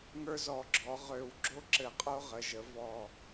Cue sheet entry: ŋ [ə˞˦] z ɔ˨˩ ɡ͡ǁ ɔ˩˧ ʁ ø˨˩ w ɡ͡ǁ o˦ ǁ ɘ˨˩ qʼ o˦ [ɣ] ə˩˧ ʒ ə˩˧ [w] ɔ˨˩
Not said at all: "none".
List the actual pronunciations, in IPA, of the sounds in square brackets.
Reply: ə˞˦, ʁ, v

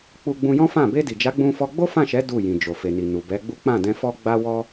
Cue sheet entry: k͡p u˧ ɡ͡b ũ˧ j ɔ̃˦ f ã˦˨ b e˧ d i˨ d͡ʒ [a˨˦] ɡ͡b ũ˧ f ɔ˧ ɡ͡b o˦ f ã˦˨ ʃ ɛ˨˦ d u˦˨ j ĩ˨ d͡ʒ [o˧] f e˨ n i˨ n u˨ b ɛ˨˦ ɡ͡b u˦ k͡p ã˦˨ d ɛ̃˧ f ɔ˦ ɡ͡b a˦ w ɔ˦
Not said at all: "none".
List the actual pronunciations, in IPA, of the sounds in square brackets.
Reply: a˨˦, o˨

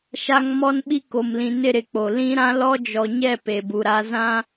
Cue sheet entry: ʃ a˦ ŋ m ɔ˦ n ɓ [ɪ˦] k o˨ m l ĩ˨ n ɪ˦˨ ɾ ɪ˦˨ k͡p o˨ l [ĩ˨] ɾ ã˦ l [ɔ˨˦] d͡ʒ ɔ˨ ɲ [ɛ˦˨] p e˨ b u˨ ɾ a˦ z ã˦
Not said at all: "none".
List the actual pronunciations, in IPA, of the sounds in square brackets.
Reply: i˦, ĩ˦, ɔ˦, ɛ˦˨

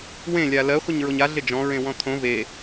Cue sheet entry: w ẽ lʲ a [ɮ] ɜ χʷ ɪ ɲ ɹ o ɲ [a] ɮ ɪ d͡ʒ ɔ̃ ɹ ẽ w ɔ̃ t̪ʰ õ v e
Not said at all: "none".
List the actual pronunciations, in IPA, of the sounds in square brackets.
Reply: l, a

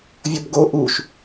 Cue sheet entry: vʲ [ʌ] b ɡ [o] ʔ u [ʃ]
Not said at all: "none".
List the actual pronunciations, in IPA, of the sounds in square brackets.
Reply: ʌ, o, ʃ

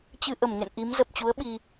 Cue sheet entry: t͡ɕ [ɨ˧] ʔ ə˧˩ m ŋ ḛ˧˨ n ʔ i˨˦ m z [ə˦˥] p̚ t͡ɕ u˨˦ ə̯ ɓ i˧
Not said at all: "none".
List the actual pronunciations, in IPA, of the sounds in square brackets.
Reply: ɨ˧, ə˨˩

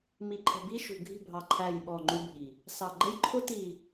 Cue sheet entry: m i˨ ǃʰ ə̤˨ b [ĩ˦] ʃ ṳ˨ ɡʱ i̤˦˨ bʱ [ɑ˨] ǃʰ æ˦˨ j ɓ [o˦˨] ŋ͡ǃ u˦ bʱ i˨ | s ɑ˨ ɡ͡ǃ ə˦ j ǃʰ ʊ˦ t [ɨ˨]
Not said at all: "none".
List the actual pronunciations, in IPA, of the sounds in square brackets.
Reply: i˦, ɑ˨, ɔ˦˨, i˨

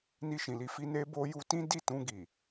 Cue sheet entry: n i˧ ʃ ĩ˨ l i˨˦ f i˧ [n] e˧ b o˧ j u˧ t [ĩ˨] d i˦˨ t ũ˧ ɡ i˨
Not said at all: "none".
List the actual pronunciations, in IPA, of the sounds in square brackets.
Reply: n, ĩ˦

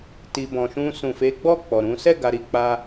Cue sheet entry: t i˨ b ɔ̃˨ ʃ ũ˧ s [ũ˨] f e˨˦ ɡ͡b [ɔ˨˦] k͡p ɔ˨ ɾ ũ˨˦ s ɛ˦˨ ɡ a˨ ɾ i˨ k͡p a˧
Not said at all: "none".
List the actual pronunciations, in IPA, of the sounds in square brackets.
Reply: ũ˨, ɔ˦˨

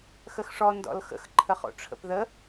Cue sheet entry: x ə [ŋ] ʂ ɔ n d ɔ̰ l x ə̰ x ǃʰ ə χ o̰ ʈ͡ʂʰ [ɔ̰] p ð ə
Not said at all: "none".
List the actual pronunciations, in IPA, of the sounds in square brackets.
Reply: x, ə̰

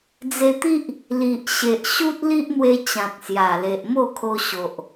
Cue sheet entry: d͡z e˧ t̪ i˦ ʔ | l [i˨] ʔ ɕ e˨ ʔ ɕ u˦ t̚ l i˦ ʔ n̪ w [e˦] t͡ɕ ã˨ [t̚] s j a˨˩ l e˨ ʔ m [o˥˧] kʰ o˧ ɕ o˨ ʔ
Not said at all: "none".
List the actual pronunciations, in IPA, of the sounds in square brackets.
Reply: i˨, e˧, t̚, o˥˧

